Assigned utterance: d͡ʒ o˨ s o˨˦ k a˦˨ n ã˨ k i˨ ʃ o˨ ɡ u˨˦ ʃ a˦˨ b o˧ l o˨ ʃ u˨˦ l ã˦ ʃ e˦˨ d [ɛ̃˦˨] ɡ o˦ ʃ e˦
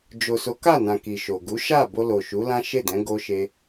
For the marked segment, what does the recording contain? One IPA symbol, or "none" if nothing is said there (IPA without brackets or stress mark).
ɛ̃˨˦